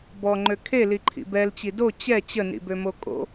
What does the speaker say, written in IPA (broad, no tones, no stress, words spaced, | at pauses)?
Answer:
bɔŋ͡ǃø kʰeliǃʰḭ bɛlt͡ɕi do t͡ɕɛ t͡ɕənḭbømo kʼo̰